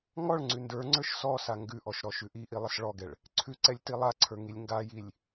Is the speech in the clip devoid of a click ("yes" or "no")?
no